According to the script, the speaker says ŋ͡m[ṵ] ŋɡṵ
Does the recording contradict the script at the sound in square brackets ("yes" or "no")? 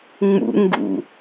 no